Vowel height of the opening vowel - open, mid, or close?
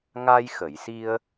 open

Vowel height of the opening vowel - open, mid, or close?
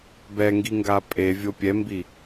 mid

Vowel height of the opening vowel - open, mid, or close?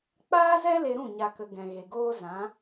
open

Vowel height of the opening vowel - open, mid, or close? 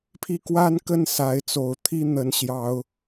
close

